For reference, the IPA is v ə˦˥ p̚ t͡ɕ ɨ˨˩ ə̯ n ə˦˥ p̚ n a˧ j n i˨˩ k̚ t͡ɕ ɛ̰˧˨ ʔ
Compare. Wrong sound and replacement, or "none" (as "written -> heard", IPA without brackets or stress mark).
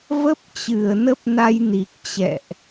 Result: none